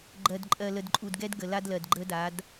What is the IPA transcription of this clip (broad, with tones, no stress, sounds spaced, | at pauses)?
ɡ͡ǃ ɜ˨ d ǃʼ ɜ˨ l ə˨ d ǃʼ u˨ d ɡ ɛ˦ d ɡ ə˨ l a˦ d l ɜ˨ d ɡ͡ǃ ə˦ d a˨˦ d